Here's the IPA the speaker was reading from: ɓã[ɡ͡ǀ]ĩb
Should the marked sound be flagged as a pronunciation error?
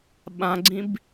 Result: no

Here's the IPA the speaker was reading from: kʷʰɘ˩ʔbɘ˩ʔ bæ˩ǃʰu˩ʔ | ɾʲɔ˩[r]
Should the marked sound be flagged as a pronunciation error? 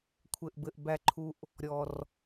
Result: no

